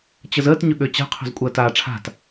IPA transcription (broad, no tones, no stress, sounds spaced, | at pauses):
t͡ɕ ə z əː t ɲ ɵ ɠ ø t͡ɕ a̤ qʰ o̤ z kʷʼ əː t aː ʈ͡ʂʰ a̤ t